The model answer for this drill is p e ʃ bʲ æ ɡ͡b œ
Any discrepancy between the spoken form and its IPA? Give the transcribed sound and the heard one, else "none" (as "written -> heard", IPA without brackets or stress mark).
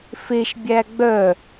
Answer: p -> f